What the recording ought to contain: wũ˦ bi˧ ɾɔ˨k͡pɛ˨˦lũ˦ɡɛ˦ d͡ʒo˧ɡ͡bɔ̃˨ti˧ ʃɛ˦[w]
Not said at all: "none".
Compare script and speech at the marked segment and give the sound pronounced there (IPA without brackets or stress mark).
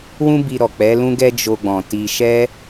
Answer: none